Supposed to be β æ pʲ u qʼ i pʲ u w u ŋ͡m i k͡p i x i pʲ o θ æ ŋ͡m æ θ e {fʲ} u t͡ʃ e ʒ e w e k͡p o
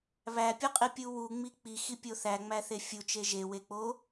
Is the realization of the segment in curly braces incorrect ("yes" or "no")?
no